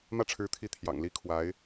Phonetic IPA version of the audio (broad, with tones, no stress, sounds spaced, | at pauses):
m ä˥˩ ʈ͡ʂʰ ɻ̩˧˥ t̪ʰ i˧˥ t̪ʰ j ɑ̰˨˩ ŋ l i˥ kʰ w a˧˥ ɪ̯